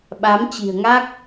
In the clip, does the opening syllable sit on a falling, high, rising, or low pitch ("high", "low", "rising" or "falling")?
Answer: rising